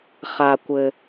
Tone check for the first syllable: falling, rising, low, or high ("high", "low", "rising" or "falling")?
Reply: low